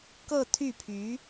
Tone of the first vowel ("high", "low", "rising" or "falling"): falling